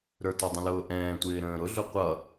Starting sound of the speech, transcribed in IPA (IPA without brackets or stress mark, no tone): ɾ